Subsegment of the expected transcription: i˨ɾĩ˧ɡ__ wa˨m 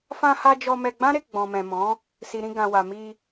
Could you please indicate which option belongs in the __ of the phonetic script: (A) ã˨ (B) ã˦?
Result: A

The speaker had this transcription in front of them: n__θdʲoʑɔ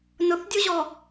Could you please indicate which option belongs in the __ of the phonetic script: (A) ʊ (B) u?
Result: A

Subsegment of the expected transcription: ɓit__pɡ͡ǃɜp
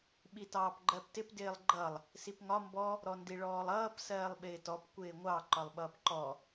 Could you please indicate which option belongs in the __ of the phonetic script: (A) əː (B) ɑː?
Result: B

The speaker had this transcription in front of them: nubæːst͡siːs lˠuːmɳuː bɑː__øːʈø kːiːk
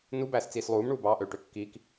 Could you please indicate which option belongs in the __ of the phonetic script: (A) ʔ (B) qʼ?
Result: A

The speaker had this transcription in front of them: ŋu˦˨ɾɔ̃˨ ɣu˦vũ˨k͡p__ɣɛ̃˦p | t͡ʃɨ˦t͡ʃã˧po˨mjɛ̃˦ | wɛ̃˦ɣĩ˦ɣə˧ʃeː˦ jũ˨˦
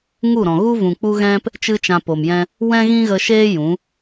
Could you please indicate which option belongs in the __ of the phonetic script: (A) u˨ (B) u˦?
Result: B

